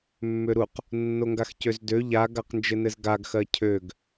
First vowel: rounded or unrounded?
rounded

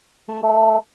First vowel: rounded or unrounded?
rounded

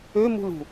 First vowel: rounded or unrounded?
rounded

